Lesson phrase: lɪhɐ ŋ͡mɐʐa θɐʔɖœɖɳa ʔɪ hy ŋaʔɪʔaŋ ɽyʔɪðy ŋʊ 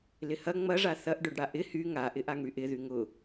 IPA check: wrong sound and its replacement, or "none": ɳ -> ɽ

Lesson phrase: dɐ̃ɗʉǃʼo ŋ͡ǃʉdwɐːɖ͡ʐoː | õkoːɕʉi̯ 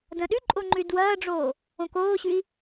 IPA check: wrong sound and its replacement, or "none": none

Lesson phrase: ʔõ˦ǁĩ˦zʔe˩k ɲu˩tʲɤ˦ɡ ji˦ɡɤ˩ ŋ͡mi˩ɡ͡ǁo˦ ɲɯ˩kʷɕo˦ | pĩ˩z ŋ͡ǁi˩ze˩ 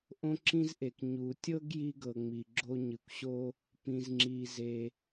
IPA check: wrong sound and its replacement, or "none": none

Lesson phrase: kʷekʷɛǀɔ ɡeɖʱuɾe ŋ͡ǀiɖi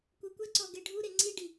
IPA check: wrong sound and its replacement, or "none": none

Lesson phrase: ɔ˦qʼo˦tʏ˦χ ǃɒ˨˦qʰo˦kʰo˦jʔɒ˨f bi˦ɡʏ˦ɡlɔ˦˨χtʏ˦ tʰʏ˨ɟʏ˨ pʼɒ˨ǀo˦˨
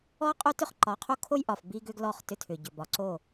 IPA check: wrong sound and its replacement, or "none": pʼ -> b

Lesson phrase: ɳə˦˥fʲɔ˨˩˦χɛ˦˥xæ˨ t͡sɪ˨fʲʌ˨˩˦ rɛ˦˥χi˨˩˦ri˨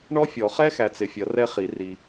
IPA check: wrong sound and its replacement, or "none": ə˦˥ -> ɔ˦˥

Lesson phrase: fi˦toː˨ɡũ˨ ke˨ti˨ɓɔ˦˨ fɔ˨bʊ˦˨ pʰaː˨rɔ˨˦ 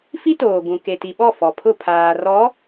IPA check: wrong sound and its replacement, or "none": b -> pʰ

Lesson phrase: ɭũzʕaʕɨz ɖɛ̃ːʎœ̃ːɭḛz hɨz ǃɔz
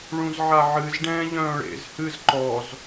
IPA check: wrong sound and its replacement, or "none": none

